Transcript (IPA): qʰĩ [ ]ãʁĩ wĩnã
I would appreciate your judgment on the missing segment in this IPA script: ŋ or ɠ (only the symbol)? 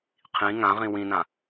ŋ